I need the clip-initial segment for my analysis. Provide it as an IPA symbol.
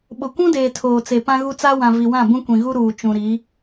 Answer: ɓ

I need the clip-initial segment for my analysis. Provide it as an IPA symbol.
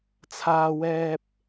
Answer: t͡sʰ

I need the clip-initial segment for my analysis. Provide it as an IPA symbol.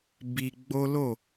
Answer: b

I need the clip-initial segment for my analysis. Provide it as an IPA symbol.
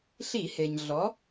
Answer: ɬ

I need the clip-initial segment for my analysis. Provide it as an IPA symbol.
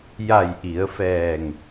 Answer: j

